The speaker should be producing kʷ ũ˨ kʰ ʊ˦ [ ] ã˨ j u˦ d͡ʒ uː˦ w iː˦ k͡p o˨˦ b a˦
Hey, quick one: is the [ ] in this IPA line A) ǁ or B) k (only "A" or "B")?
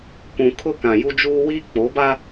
B